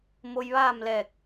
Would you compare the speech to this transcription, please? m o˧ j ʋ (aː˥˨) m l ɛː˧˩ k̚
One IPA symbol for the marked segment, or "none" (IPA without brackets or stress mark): aː˥˨